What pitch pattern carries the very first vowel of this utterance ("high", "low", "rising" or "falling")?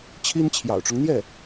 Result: high